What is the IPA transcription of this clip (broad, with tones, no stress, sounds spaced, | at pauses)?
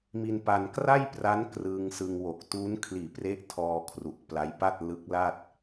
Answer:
m i˧ n p a˧ n k r a˥˩ j p r a˦˥ n k r ɯː˧ ŋ s ɯ˧ ŋ w o˨˩ k̚ t uː˦˥ n kʰ l iː˨˩ p r e˦˥ ʔ tʰ ɔː˧ kʰ r u˨˩ ʔ p l a˦˥ j p a˥˩ t̚ l ɯ˦˥ k̚ l a˥˩ t̚